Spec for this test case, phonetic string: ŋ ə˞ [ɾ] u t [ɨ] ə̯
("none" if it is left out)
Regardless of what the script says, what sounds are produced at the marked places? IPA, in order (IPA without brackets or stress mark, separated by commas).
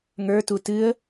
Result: t, ɨ